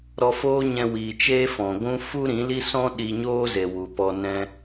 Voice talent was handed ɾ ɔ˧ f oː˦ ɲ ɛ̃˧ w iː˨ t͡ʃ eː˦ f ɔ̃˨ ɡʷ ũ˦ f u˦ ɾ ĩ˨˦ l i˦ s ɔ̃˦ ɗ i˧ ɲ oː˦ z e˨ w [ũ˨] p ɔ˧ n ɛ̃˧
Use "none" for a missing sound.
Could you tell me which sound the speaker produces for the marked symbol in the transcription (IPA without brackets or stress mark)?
u˨